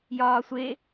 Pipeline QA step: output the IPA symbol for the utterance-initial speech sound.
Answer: j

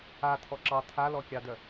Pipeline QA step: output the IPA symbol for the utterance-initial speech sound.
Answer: a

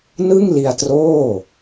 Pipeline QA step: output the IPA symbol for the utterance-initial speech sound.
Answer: n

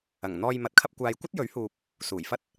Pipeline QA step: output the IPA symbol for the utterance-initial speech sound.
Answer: ɐ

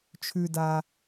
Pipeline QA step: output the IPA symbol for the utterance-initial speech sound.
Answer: t͡ʃʰ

